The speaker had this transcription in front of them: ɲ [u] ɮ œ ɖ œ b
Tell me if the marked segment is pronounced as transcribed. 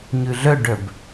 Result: no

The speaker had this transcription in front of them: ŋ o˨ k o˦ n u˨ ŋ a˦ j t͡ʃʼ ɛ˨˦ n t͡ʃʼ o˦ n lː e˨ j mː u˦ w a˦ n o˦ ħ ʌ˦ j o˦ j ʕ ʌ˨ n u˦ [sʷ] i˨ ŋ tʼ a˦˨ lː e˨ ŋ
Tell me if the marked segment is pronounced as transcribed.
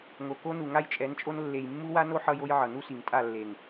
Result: no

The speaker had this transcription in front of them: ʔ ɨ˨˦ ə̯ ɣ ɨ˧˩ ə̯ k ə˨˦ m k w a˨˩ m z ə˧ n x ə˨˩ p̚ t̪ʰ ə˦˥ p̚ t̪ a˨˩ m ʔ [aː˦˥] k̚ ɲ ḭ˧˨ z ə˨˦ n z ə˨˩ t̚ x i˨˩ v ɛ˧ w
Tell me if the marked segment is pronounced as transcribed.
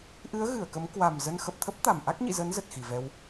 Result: no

